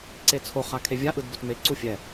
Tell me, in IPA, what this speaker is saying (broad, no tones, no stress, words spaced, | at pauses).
ǀet͡sʰo χakʰevʲa ʔɯdbotme ǀufʲɛ